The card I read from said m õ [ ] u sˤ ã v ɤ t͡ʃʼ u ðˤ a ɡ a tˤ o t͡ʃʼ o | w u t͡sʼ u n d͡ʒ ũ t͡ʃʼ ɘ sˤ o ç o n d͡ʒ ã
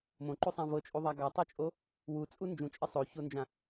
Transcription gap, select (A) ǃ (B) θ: A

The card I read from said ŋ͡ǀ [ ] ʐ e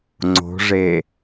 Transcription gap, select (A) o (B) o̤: B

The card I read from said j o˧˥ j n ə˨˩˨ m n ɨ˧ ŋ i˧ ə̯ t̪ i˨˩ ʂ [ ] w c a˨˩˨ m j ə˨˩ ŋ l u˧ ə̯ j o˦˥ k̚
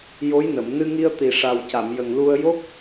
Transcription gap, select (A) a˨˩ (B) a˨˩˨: A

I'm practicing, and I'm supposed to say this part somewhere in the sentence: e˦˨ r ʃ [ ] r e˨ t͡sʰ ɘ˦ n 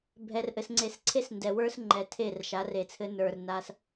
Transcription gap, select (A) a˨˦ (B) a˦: A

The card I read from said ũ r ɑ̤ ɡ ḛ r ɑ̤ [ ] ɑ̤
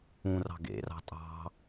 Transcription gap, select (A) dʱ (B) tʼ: B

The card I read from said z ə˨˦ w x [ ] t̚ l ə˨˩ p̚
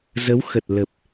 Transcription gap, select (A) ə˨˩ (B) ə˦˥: A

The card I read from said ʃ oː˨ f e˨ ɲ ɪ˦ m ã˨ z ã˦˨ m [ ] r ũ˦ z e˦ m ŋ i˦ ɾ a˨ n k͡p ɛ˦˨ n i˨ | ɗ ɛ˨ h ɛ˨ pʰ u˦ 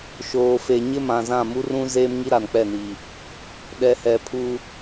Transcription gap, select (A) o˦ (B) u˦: B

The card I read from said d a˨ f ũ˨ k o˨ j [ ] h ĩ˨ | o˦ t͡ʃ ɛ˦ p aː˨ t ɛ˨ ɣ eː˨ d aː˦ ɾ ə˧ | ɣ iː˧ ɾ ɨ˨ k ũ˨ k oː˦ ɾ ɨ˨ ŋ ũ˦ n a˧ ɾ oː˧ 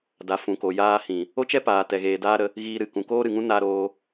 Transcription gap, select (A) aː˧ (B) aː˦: A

